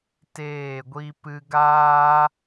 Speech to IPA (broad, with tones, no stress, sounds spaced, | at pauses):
t eː˦˨ ɡʷ i˦ p ɨ˧ ɡ aː˦